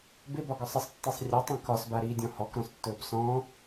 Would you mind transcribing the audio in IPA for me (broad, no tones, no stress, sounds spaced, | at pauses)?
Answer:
b ɪ b ɒ ɡ ɒ sˤ ɪ sˤ tː i sˤ rʲ ɵ tˤ ĩ k ɒ s b a ɾ iː dʲ ɔ̃ h ɔ k ɾ ɔ̃ s tː ɵː b s ɔ̃